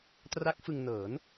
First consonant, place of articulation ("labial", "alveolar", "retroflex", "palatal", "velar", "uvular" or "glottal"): alveolar